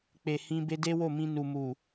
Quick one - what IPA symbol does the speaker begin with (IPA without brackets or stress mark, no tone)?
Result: k͡p